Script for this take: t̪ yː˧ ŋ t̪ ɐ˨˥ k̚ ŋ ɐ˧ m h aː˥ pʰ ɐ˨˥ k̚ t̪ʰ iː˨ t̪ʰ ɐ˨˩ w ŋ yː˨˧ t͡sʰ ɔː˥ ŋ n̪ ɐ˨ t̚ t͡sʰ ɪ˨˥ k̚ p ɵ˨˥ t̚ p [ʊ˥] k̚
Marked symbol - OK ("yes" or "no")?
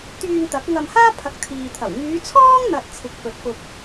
no